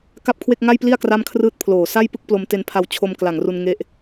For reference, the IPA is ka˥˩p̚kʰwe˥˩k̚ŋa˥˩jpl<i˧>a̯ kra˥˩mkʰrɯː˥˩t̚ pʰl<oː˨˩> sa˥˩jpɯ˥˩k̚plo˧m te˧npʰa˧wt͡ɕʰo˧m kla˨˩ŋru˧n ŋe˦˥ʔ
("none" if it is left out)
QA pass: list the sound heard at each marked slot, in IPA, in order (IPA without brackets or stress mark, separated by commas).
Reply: i˥˩, oː˨˩